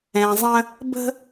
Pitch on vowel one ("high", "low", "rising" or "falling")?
low